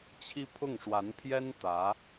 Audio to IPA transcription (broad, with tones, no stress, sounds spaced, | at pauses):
t͡ɕʰ i˥ pʰ ʊ˥˩ ŋ ʂ w a˧˥ n pʰ j ɛ˥ n t̪ ä˧˥